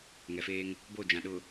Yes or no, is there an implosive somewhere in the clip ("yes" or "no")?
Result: yes